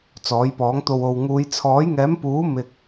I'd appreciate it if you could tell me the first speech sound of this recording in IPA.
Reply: t͡s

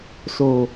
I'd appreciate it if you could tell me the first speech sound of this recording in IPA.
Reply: s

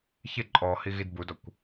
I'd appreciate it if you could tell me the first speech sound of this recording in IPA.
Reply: ç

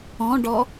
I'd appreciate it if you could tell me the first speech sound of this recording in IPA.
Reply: ɔ̃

